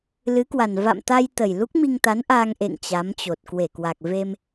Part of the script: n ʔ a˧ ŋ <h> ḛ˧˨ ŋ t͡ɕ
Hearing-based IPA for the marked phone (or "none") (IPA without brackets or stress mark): ʔ